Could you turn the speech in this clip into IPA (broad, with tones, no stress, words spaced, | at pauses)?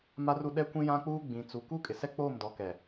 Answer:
ma˦ru˦ ɗɛ˦kʷĩ˦jã˦k͡puː˦ ɡ͡bĩ˨t͡su˨ ku˦kʼɪ˨sɛ˦k͡poː˦˨m dɔ˨˦kɛ˨